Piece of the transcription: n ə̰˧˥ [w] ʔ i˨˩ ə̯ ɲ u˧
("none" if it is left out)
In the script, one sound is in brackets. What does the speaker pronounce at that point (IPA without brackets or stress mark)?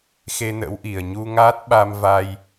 w